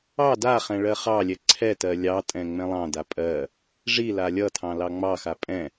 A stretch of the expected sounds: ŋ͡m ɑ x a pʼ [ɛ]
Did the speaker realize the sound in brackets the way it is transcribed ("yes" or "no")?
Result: no